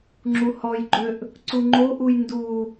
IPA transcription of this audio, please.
ŋ͡ǁ u h ɔ j ɡ͡ǃ ø ʔ | ǀ u ŋ͡ǃ o ʔ u j n d u

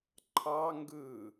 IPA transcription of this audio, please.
ǃʰ ɑ ŋ ɡ ɯ

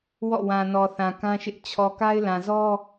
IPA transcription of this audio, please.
w ɔ̰˦˨ w ã˨ n ɔ˨ θ ã˨ k ã˦ ʃ ɪ˦ ʔ t͡ɕʰ ɔ˨ k a˦ ɪ̯ l ã˨ z ɔ˦

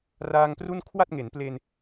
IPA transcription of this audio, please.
r aː˧ ŋ p r u˥˩ n kʰ w a˥˩ t̚ ŋ e˩˦ n p l e˧ n

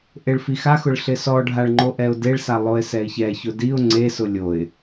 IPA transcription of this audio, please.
ʔ e ɭ f i x a x ʊ ɭ ɬ ɪ s ɔ ɖʱ a ɭ ŋ͡ǃ o ʔ ɛ ʊ̯ d e ɭ s a lˠ o ɪ̯ s ɛ ɪ̯ ç ɛ ç ʊ d i ʊ̯ ŋ͡ǀ e s ʊ lʲ o ɪ̯

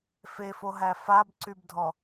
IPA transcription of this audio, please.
f e f o ɦ æ f a b ǀ y b dʱ ɔ

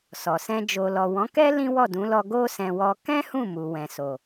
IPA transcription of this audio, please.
s ɔ˨ s ɛ̃˧ d͡ʒ o˨ l ɔ˨ w ɔ̃˨˦ k ɛ˦ l ĩ˦ w ɔ˦˨ d ũ˨˦ l ɔ˧ ɡ o˦ s ɛ̃˧ w ɔ˧ k ɛ̃˦ h ũ˦˨ m u˨ w ɛ̃˨ s o˨

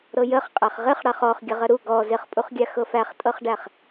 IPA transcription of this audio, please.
ɾ ɤ j ə χ qʼ æ χ ʁ ɪ χ ɽ a χ ɔ χ ɡʲ ə ʁ ə ɾ u ɡ ɔ z ɪ χ pʼ u χ ɡʲ a x ɤ f æ χ tʼ ɤ χ ɖ æ χ

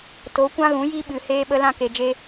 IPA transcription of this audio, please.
t o˨˦ kʷ ã˦ ɣ ũ˨˦ j i˦ ɓ ɨ˨ h eː˦ ɓ ə˦ l ã˦ k e˨ d͡ʒ e˧

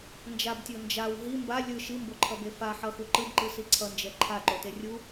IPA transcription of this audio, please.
n d͡ʒ a b tʲ o n d͡ʒ a w ɦ i m b a lʲ ɯ ʃ i m b o ǃʰ ʌ b e f a ħ ʌ x u ǃ ɯ b ǃ ɯ s i ǀʰ ʌ n d͡ʒ ɛ ǃʰ a ǃ o t e rʲ u

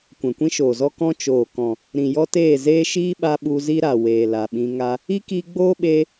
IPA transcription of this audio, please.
kʷ ɛ̃˨ kʷ ĩ˦ ʃ oː˨ z ɔ˦ k ɔ̃˦ t͡ʃ oː˨ k ɔ̃˨ | ɾ ĩ˨ j ɔ˦ t eː˦˨ z eː˦ ʃ iː˦ ɓ a˧ ɓ u˧ z i˦ ɾ a˨ w eː˨ l a˨ ɓ ĩ˧ ŋ a˧ | i˦ k iː˧ ɡ͡b oː˦ ɓ eː˧

